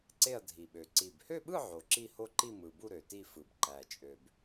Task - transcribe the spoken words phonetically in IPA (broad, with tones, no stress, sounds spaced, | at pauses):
ǀ e˥˧ ɐ̯ dʱ i˨˩ ɓ ø˨˩ ǀ i˨˩ b h ø˥˧ ɓ ɯ˥˧ ʕ o˨˩ ǁ i˥˧ h o˥˧ ǃ i˥˧ m ɯ˨˩ b u˥˧ ɾ ø˨˩ t i˥˧ f ɯ˨˩ b ǃ æ˨˩ t͡ʃʼ ø˨˩ b